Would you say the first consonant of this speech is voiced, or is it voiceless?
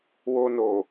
voiced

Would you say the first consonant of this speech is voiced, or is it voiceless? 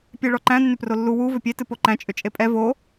voiceless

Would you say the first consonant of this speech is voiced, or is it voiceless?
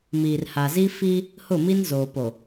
voiced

